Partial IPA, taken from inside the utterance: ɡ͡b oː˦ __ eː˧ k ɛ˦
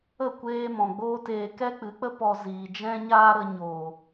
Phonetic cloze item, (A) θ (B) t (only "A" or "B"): B